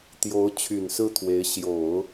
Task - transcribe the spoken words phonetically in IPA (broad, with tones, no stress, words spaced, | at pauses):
t̪jo˧˥ʊ̯ t͡ɕʰy˨˩nsɹ̩˥˩t̪ʰwe˧˥ɪ̯ ɕjo˨˩˦ʊ̯